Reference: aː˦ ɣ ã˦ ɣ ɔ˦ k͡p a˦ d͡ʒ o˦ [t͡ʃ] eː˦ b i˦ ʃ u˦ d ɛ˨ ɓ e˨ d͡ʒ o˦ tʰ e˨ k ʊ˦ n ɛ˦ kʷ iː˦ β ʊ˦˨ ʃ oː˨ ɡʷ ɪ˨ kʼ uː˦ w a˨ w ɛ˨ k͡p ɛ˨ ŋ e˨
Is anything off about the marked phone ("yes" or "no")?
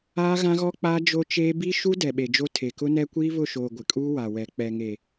no